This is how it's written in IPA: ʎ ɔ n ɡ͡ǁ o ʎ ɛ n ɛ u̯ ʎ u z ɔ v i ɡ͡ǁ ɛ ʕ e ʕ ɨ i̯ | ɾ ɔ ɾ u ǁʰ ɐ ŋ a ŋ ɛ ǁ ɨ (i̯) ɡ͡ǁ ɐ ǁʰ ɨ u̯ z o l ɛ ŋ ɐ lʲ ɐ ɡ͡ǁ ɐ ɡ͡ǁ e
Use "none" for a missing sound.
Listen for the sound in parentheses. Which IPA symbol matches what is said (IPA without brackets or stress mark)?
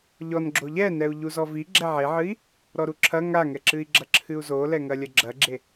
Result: i̯